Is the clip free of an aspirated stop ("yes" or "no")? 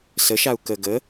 yes